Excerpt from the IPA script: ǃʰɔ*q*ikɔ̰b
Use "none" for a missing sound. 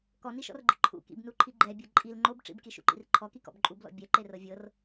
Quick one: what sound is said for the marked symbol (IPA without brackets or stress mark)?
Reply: k